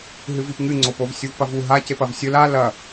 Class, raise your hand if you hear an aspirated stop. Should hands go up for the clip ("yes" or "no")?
no